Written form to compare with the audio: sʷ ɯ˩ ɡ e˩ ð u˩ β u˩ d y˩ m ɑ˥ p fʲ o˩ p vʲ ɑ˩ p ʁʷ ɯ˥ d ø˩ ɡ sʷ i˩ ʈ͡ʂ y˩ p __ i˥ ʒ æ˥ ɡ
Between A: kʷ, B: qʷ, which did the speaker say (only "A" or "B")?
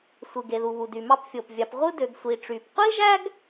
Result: B